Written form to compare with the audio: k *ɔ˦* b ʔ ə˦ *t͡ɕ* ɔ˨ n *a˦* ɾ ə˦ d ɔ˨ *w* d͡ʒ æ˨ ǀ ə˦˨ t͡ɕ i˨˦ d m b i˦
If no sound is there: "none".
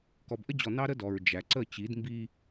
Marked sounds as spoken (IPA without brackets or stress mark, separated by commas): ɔ˨, d͡ʑ, ɑ˦, ɹ